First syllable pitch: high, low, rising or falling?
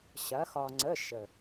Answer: rising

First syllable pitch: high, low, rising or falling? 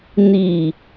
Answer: low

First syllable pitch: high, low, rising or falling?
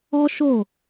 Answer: high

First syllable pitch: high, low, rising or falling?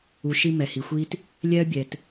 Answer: low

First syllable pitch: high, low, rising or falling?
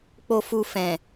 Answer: low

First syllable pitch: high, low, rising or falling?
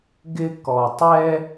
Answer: high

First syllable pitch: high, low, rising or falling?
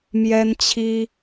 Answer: high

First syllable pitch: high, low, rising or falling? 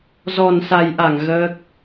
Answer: low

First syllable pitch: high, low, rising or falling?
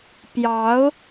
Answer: rising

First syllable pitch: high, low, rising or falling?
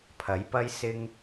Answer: rising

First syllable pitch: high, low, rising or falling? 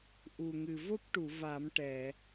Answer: low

